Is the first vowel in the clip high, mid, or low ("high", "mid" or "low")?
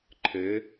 mid